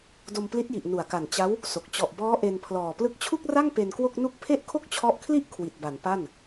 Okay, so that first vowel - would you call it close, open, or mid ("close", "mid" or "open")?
mid